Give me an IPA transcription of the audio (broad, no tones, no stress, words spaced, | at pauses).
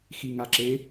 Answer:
xiŋaǁe